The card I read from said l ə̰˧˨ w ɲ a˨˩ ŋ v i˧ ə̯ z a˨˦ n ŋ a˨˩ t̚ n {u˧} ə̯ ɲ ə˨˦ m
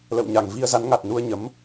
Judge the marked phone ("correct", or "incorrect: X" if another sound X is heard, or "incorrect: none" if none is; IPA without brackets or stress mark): correct